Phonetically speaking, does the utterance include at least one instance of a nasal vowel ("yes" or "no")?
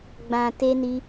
yes